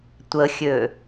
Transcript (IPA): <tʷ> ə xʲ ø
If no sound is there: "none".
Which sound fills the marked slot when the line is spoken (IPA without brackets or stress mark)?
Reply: tʷ